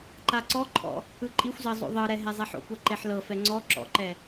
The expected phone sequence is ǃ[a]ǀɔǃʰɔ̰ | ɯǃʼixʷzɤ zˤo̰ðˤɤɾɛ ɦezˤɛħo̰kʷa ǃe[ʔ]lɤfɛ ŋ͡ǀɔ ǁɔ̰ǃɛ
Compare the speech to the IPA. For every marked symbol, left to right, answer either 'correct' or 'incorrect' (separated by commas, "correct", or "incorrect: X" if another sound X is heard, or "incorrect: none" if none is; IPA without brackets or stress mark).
correct, incorrect: ħ